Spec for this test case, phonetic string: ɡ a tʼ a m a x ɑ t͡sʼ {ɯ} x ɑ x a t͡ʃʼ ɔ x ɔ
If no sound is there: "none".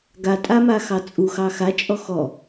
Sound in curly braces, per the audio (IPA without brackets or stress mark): u